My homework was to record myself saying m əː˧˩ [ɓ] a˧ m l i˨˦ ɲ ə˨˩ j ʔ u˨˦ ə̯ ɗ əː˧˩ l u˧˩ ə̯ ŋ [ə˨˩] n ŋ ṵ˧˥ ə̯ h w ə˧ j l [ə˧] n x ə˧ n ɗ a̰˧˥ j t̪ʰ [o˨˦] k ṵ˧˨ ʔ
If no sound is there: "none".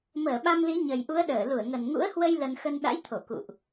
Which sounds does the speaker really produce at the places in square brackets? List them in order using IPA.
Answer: ɓ, ə˨˩, ə˧, o˧˩

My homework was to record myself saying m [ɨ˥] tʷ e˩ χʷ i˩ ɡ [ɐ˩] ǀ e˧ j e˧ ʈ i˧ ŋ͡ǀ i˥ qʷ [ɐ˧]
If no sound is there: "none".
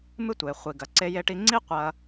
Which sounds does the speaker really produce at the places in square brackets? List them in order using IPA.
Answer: ɨ˥, ɐ˩, ɐ˧

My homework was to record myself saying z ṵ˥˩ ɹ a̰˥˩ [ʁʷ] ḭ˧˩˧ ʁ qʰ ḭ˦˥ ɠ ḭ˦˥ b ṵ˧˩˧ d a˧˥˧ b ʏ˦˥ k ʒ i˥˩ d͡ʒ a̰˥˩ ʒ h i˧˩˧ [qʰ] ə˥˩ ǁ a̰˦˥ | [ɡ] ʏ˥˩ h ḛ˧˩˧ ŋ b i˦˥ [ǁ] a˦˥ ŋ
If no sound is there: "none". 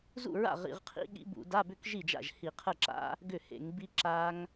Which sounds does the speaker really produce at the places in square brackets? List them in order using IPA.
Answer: ʁ, qʰ, ɡ, ǁ

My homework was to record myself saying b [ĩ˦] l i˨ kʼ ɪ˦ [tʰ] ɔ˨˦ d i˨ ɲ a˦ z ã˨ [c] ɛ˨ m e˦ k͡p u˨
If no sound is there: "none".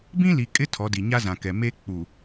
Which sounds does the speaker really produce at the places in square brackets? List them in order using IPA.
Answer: ĩ˦, tʰ, k

